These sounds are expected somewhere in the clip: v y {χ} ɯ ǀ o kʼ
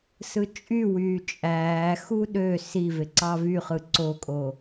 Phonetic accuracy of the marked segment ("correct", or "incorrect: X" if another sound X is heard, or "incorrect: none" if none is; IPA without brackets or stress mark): correct